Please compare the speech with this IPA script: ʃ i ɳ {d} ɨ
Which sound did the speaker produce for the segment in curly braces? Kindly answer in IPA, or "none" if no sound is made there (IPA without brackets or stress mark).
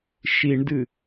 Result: d